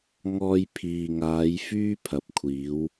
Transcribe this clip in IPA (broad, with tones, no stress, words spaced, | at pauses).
ŋɔː˧jpʰiː˨ŋaː˨˧j fyː˥pʰɐ˨p̚kʷʰiː˨˧w